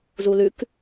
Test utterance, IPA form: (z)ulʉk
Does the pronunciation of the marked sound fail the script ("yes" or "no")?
no